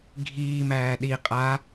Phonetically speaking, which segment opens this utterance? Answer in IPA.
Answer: ɡʱ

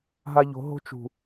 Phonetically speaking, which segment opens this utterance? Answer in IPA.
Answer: ɦ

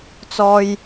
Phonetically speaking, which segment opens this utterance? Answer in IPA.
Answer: t͡s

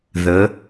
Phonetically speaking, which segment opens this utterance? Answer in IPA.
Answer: ð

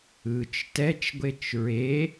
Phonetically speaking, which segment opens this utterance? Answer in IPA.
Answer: ɯ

